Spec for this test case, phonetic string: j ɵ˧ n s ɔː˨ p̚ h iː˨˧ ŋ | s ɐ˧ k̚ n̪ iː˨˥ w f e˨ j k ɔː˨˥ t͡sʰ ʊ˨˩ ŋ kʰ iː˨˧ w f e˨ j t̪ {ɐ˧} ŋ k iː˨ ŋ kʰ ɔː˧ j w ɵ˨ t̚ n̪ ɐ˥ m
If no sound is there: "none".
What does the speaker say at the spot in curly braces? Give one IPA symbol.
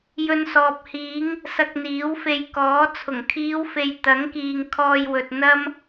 ɐ˨˥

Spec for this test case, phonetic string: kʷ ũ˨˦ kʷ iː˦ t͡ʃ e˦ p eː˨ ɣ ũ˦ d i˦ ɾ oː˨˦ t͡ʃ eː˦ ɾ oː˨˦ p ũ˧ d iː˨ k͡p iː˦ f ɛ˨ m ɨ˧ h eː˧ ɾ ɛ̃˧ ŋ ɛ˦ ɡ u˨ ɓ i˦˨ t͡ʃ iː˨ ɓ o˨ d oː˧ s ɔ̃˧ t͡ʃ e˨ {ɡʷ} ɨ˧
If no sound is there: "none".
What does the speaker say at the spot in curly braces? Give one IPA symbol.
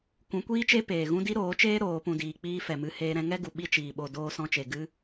ɡ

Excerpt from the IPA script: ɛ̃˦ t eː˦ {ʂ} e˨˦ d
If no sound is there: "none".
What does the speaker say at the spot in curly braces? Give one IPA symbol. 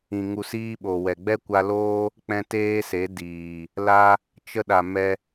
s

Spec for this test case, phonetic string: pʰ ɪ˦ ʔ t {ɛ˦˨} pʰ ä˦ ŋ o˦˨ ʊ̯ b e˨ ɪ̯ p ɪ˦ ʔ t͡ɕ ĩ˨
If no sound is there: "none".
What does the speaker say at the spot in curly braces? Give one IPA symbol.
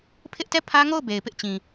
ɛ˦˨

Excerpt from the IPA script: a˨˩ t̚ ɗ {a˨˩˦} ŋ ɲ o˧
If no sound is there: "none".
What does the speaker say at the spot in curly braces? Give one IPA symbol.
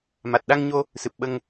a˧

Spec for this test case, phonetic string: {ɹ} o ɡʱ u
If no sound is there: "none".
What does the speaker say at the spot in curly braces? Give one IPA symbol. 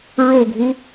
ɹ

